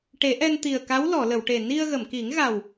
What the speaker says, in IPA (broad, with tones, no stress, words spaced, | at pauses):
ʈe˨˩˦ʔɛ˧nt̪i˨˩ə̯ ka˧˥wlɔ˨˩˨lə˨˩˨wʈe˨˩ ni˧ə̯ɣə˨˩˨mki˨˩˦ŋɣa˨˩w